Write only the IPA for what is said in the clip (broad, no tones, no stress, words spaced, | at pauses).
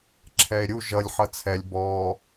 ǁʰɛe̯ɾʲu ʒʌlʲ ħʌt͡sʰɛlʲ bɔː